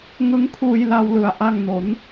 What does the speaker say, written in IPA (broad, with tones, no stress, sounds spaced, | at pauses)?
ŋ ɯ˦˥ ŋ kʰ uː˧ j l a˧ w l ɯ˨˩ a̯ ʔ a˥˩ ŋ n o˩˦ n